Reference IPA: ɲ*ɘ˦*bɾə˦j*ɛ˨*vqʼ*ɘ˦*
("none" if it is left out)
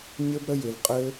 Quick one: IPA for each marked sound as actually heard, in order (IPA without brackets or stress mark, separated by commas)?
ɘ˦, ɪ˨, ɘ˦